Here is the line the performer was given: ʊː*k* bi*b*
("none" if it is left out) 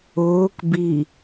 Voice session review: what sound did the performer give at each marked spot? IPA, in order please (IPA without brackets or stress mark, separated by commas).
k, none